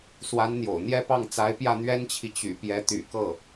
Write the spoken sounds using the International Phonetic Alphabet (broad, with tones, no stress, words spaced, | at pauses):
swa˧˥nn̪jo̰˨˩ʊ̯n̪jɛ˥pɑ˥˩ŋ t͡sa˧˥ɪ̯pjä˥˩ n̪ɥɛ˥nt͡ɕʰi˨ t͡ɕy̰˨˩pjɛ˧˥t̪y̰˨˩kɤ˥˩